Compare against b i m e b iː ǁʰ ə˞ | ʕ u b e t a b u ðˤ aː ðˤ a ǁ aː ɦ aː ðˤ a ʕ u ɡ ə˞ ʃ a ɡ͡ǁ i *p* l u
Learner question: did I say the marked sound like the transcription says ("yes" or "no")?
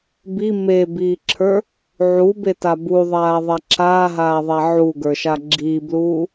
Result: no